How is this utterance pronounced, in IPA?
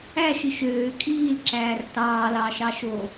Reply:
æ ʃ i ʃ øː kʼ iː l ǁ æː r t ɑː l ɑː ʃ ɑ ʃ o

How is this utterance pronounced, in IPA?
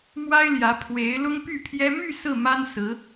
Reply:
m w a˥ ɪ̯ l j ä˧˥ pʰ w e˧˥ ɪ̯ l ʊ˥ ŋ p y˥˩ pʰ j ɛ˥ m y˥˧ s ɹ̩˥˩ m a˥ n s ɹ̩˧˥

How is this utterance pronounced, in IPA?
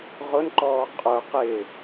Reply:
ʁ ʊ n ǃ ɔː qʼ ə˞ q ɪ

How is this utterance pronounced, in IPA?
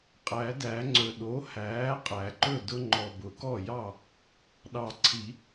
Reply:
qʼ æ˨˩˦ d æ˨˩˦ ŋ͡ǀ ɵ˨˩ ɗ o˩˥ h æː˩˥ qʼ æ˨˩˦ ǃ ɵ˥˩ d ʊ˦ ŋ͡ǃ ɔ˨˩ b ʊ˨˩˦ k ɔ˥˩ j ɑ˥˩ | ɗ ɑ˨˩ ǀʰ i˨˩˦

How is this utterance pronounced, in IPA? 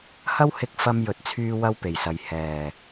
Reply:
h ɐ˥ w h ɪ˧ k̚ f ɐ˧ m j ɵ˨ t̚ t͡sʰ yː˧ w ɐ˥ w p e˨˩ j s ɐ˨ j h ɛː˨˩

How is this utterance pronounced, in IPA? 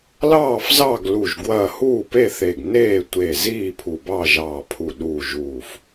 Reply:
l ɑː˥˨ f z ɑ˥˨ ɡ l u˧˩ ʒ ɡ w ɐː˥˨ h uː˥˨ p e˥˨ θ e˧˩ ɡ n eː˥˨ tʷ e˧˩ z iː˥˨ pʰ u˧˩ b ɑ˥˨ ʒ ɑː˧˩ pʰ u˧˩ ɗ u˧˩ ʒ uː˧˩ f

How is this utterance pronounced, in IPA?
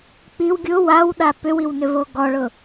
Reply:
k͡p i w ɡʲ ʊ w a w ɗ a p ʏ w i w n ʏ v o ɡ ɔ ɭ ʊ

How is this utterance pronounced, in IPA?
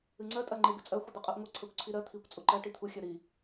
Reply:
ɨ ŋ͡ǀ ɜ tʼ ɜ ŋ͡ǃ e ɡ ɨ t͡sʼ ɜ xʷ ɨ d̪ ɨ qʼ ɜ ʔ ŋʷ ɨ ǀʰ ɜ kʷ ǀʰ i ɾ ɜ t̪ʰ i kʷ t͡sʼ u ǃ ɜ ʈ i t̪ʰ u xʲ ɜ ɾ i

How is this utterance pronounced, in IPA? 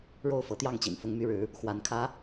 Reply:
ɻ o˥˩ ʊ̯ f ɤ˧˥ t̪ j ɑ˥˩ ŋ t͡ɕ ḭ˨˩ n f ʊ˥ ŋ m y˥ ɻ ɻ̩˧˥ | x w a˧˥ n kʰ ä˥

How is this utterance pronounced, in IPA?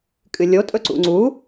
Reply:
kʼ ɨ lʲ o tʼ ɵ ǀ ṵ ŋ͡ǀ u

